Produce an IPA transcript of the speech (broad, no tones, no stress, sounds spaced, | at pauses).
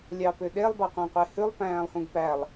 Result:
lʲ ɑ p ø ɗ e lˠ b ɑ qʷ æ̃ qʷ e h ʉ lˠ p æ̃ː lˠ h ũ ɡ p æ lˠ